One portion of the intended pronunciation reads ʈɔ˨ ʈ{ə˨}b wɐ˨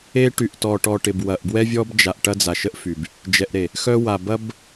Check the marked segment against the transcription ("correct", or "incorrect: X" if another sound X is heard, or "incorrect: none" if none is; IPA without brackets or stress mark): incorrect: ɪ˨